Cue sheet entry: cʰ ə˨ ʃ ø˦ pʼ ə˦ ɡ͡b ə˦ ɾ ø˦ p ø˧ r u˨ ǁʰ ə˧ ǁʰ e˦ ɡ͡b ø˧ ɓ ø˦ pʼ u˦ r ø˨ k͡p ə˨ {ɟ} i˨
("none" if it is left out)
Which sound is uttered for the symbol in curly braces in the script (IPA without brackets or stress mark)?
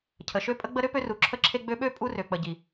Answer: ɟ